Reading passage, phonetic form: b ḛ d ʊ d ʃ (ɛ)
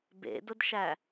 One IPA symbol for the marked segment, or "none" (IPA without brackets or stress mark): æ